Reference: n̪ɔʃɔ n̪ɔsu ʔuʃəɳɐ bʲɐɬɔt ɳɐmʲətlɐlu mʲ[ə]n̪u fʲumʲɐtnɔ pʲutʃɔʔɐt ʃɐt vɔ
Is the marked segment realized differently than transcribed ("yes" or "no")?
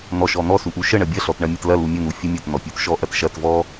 no